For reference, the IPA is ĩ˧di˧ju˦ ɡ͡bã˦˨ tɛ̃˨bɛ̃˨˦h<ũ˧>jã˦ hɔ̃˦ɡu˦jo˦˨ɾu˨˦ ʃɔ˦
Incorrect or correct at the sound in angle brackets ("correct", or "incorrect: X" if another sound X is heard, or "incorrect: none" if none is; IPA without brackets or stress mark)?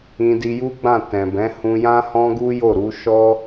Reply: correct